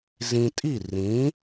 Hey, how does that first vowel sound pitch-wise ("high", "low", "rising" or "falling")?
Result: low